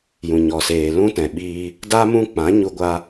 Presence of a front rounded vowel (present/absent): absent